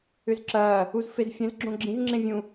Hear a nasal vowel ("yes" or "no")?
yes